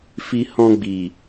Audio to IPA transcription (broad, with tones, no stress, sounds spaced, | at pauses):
f i˧ h ɔ̃˧ ɡ͡b i˨